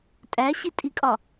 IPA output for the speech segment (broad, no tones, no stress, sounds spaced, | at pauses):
tʼ æ ɕ i tʼ i kʼ ɒ